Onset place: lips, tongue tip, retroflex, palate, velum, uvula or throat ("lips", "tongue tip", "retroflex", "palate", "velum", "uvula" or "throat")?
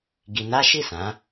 velum